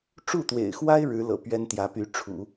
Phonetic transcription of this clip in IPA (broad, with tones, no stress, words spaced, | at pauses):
ʈ͡ʂu˥˩t̪wḛ˨˩ɪ̯xwa˥ɪ̯ ɻɻ̩˧˥lɤ̰˨˩ pɥɛ˥nt̪jä˧˥py˧˥ ʈ͡ʂʰṵ˨˩˦